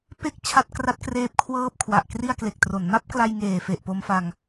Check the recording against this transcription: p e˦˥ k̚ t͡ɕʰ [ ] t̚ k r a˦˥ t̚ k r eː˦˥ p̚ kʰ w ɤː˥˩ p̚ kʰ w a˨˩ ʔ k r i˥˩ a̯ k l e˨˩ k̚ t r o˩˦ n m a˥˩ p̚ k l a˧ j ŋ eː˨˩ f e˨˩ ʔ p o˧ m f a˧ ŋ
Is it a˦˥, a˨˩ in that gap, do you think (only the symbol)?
a˦˥